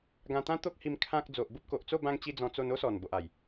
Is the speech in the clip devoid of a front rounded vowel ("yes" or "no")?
yes